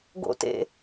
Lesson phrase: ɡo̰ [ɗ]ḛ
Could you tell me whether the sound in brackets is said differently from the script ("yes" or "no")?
yes